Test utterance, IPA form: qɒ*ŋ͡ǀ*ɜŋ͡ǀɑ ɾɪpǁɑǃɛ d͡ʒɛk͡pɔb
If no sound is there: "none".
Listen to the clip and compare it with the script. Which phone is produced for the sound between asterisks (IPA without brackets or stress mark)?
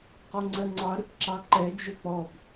ŋ͡ǀ